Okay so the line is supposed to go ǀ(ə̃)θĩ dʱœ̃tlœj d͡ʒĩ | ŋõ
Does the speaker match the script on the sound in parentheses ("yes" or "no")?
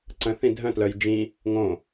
yes